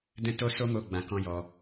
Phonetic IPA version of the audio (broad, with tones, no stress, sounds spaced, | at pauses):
d ɛ̃˦ t o˦ s o˦ m o˦˨ ɡ͡b ã˧ k ɔ̃˦ j ɔ˧